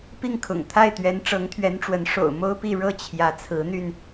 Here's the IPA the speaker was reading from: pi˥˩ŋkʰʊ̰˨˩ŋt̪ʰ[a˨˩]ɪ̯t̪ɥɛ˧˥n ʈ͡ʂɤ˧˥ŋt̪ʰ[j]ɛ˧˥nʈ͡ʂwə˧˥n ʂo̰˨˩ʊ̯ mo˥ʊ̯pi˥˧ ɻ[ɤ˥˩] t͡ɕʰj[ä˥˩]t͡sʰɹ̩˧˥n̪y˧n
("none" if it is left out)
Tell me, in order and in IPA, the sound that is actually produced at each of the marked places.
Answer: a˥˩, ɥ, ɤ˥˩, ä˧˥

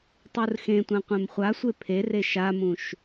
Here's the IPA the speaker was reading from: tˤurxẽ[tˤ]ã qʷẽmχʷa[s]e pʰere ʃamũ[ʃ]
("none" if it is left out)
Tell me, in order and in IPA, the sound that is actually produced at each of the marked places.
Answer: tʷ, sʷ, ʃ

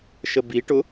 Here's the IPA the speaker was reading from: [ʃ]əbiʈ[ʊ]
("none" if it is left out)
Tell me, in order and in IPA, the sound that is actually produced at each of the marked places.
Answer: ʃ, ʊ

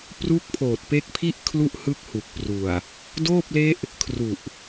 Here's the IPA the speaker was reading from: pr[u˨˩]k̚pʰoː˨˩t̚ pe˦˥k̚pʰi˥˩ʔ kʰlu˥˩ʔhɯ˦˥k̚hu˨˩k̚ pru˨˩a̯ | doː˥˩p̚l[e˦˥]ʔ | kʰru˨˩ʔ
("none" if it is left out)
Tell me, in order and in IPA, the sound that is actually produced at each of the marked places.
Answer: u˦˥, e˦˥

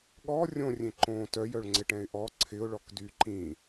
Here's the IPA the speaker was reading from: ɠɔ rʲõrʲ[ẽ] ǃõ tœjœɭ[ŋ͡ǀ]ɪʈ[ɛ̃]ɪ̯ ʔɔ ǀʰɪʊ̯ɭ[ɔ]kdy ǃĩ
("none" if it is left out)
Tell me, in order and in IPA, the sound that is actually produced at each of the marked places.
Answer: ẽ, ŋ͡ǀ, ɛ̃, ɔ

